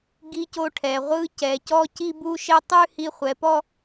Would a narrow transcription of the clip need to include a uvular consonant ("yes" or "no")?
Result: yes